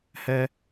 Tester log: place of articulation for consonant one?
glottal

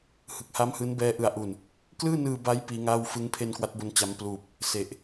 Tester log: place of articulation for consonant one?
glottal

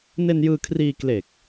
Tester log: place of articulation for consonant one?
alveolar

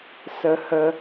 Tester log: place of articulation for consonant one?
alveolar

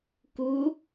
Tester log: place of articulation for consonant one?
velar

